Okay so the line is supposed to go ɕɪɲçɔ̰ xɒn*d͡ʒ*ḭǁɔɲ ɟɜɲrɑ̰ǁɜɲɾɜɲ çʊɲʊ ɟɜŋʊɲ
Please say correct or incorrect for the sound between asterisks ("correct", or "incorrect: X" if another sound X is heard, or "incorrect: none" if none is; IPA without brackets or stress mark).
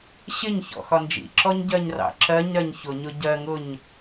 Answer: correct